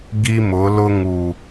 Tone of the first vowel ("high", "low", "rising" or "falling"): high